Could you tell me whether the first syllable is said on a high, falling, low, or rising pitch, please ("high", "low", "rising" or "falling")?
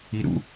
low